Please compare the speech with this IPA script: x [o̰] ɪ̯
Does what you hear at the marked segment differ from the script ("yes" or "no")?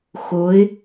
yes